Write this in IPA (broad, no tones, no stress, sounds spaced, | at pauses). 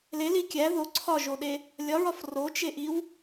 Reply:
l e l i kʲ æ ð o ǀʰ ɒ ʒ o ɗ e | lʲ ɒ ɹ ɒ f r o t͡ʃ e ʔ i w